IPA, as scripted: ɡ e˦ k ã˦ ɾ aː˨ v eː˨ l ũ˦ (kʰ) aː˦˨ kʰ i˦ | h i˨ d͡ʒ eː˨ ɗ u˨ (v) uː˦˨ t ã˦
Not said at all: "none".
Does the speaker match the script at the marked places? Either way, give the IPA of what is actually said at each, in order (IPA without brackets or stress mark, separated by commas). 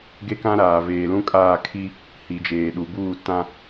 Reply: kʼ, b